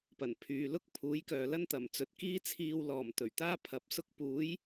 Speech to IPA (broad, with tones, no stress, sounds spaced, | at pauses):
p ɐ˨˩ n pʰ yː˨ l ʊ˥ k̚ pʰ uː˨˥ j k œː˨ l ɐ˥ n t̪ ɐ˨˩ m t͡s ɵ˨ t̚ k iː˥ t͡sʰ iː˧ w l ɔː˨˩ m t̪ ɵ˨˩ ɥ t̪ aː˥ pʰ ɐ˨ p̚ s ʊ˧ k̚ p uː˨˥ j